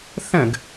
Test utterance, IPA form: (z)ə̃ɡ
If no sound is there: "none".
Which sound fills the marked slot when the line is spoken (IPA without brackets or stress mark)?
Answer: θ